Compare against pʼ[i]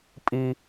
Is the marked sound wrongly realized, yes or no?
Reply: no